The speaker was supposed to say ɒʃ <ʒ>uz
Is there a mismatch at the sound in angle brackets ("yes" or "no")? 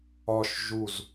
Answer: no